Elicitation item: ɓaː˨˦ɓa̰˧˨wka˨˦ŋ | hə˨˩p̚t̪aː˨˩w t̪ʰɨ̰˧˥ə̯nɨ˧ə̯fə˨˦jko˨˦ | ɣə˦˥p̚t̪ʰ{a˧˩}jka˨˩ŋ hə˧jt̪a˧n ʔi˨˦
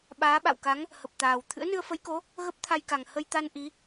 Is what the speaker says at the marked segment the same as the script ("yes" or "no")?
no